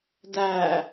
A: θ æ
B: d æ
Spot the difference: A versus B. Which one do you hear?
B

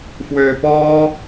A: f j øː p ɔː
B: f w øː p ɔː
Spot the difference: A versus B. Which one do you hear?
B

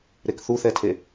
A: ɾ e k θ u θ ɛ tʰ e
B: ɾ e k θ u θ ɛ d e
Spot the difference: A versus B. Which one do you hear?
A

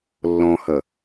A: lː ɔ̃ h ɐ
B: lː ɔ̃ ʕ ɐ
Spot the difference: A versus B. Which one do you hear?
A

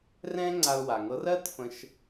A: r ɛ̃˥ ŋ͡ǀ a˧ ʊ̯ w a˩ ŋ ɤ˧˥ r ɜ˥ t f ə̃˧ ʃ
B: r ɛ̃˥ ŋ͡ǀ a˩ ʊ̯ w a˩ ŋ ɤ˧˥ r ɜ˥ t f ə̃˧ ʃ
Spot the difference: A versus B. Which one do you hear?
A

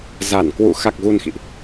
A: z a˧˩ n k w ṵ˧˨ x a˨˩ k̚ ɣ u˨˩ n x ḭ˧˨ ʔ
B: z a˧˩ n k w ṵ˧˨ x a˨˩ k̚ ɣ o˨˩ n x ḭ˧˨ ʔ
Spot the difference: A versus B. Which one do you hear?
A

